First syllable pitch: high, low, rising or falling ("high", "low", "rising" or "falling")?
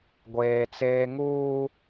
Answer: high